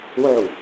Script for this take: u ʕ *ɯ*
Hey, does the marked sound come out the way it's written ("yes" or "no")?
no